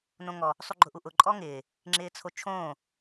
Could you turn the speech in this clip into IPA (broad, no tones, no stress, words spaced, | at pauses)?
nõŋɔ | sˤuɡ͡ǃʊʔuʔʊ ǃʼɔŋɪː | ŋ͡ǁɪːt͡sʰot͡ʃʰõː